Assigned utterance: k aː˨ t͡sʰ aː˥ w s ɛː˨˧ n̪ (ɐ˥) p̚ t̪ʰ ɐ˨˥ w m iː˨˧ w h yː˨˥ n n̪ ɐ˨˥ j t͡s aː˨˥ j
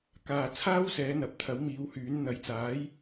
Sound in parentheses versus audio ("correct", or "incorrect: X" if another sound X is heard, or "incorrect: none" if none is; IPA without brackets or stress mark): incorrect: ɐ˨˥